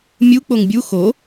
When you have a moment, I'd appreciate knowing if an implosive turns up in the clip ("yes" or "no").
no